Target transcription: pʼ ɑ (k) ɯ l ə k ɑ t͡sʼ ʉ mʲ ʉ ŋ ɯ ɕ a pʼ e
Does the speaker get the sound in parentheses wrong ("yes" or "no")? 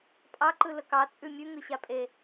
yes